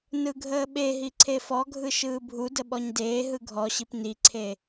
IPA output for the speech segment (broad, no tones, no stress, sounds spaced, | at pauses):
n ɯ ɡʱ əː ɓ e ɦ i ǀʰ e f ɔ ɡʱ ɯ ʃ ɯː bʱ u d ə ɓ ɔ ɲ d eː ɦ ɯ ɡʱ ɔ ɕ i p n i ǀʰ e